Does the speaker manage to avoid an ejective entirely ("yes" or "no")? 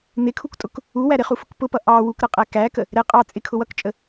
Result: no